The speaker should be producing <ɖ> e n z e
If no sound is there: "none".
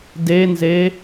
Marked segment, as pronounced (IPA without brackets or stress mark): d